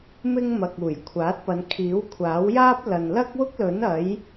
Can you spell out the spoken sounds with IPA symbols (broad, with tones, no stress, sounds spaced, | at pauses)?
m ɪ˥ ŋ m ɐ˨ k̚ uː˨˩ j kʷʰ aː˨˥ t̚ p ɐ˨˧ n kʰ iː˨˥ w kʷʰ aː˨˥ w j aː˥ p̚ l ɐ˨ n l ɐ˥ k̚ w ʊ˥ k̚ l ɵ˨˥ n ɐ˨˥ j